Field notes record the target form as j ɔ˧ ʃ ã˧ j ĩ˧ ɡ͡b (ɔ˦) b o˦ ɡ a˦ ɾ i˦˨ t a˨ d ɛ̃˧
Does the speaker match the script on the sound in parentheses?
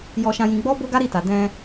yes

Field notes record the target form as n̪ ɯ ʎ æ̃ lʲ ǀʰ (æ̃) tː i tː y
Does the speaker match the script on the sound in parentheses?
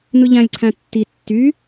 yes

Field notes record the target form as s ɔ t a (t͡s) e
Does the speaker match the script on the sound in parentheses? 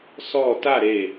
no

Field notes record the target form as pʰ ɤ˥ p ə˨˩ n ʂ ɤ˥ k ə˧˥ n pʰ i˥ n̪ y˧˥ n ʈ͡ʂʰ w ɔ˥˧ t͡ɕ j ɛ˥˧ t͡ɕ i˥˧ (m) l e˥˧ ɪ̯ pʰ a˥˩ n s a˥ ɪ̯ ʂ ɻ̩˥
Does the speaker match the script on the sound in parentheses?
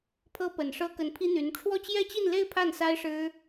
no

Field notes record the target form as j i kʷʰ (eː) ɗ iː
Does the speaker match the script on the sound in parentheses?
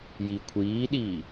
no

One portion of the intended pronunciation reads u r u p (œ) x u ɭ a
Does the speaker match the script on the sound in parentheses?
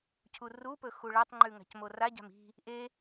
no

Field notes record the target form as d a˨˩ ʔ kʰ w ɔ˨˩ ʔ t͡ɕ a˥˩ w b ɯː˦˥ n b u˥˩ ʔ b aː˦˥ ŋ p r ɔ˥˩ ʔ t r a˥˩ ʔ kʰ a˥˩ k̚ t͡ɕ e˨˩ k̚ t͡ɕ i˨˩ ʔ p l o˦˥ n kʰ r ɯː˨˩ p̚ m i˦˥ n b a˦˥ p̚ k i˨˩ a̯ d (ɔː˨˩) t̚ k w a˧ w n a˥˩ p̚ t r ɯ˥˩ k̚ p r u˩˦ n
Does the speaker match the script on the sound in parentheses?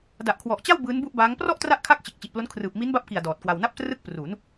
yes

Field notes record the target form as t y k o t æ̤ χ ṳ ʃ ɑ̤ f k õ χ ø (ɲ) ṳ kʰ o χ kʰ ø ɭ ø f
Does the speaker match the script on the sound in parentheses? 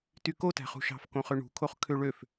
no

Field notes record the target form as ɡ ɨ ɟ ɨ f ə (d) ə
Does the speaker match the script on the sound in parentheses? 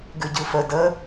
yes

